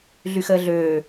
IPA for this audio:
ɮ y x əː ɮ øː

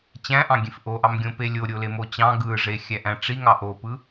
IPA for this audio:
t͡ɕ æ̃ ʔ ɑ̃ ɡʲ ẽ f ʔ o ʔ ɑ m ɡʲ õ p e lʲ o ɾʲ o l e m o t͡ɕ ɑ̃ ɡ ɯ ʐ e xʲ æ ʔ æ̃ ʈ͡ʂ i ŋ ɑ ʔ o p ɯ

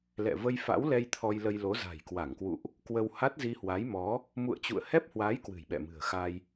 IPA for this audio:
l ɛ̰˧˨ v ə˧ j f a̰˧˥ w l ɛ˧ j t̪ʰ ɔ˧ j l ə˧ j l o˨˦ z a̤˨˩ j k w a˧˩ ŋ k w ṵ˧˨ ʔ | k w ə˧ w h a˦˥ t̚ z i˧ h w a˨˦ j m ɔ˨˦ | m ṵ˧˨ ə̯ t͡ɕ ṵ˧˨ ə̯ h ɛ˦˥ p̚ h w a˨˦ j k w ɨ̤˨˩ j ɓ ɛ̰˧˨ m ɨ̤˨˩ ə̯ x a˧ j

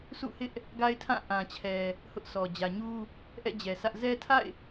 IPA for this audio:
s ṵ˦˨ h ɪ˦ ʔ | ɡ a˦ ɪ̯ tʰ ã˦˨ ʔ ã˨ t͡ɕʰ ɛ˨ | h ʊ˦ ʔ sʰ ɔ˨ d͡ʑ ä˨ ɲ u˦ | ʔ ɛ̰˦˨ d͡ʑ ɛ˨ sʰ ä˦ ʔ z ɛ˦ tʰ a̰˦˨ ɪ̯

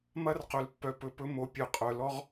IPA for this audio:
m ɐ˦ r q ɵ˨ l pː œ˨ p ɵ˨ p ɵ˧ m o˨ pʲ œ˨ qʼ œ˨ l ɔ˦ ʁ

